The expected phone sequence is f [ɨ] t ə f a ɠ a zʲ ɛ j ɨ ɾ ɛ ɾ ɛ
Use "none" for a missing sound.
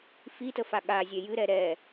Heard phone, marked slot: i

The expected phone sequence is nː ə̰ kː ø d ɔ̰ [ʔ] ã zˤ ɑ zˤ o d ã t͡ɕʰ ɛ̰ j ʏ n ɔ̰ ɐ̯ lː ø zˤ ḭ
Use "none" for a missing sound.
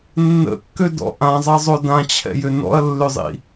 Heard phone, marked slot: ʔ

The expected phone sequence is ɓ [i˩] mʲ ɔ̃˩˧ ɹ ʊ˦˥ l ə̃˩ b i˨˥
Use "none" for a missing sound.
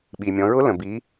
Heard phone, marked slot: i˩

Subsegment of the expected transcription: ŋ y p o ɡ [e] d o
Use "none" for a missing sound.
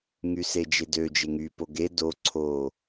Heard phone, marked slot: e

